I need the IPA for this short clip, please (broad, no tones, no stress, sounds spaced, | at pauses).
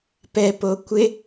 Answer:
p ɛ p o kʷ ɪ